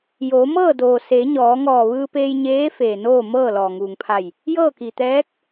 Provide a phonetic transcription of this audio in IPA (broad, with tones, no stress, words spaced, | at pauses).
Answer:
joː˩˧mɤː˥˨ doː˩seː˩˧ ɲɔː˩˧ŋɔː˧˩ ʋɯː˧peː˧j ɲeː˧˥ feː˩noː˥˨ mɤː˥˨lɔː˩ŋuː˩ŋpʰa˧˩j | jɤː˥˨ki˩t̪ɛː˧˥k̚